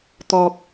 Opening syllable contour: low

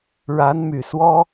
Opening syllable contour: rising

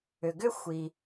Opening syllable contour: low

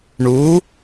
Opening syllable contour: rising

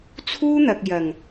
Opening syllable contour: high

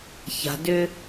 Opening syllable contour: low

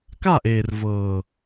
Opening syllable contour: falling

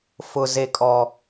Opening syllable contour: low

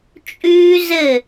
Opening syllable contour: high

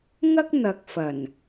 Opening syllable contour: high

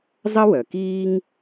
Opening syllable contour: high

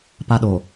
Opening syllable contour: high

